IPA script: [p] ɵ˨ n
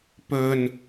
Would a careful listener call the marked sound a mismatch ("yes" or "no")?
no